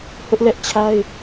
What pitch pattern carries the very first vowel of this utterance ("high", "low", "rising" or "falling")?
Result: high